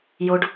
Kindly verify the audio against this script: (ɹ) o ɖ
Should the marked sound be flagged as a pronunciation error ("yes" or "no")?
yes